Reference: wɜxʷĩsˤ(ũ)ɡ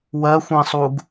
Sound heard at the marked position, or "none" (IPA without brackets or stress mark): u